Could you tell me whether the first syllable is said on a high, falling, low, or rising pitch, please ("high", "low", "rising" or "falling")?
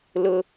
high